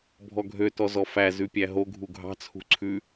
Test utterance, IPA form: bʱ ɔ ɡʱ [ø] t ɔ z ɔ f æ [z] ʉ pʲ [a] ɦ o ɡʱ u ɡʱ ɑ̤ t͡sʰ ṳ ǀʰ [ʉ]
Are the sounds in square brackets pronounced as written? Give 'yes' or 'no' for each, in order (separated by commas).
yes, yes, no, yes